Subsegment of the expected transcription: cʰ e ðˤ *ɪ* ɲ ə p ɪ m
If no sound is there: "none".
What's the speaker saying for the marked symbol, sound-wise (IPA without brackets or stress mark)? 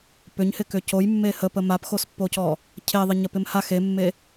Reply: ɪ